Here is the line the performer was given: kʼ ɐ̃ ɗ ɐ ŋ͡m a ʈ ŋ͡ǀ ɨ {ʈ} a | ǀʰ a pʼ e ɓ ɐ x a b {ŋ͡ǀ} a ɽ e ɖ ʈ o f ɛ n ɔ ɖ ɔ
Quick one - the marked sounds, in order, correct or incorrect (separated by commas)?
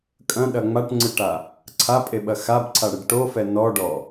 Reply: correct, incorrect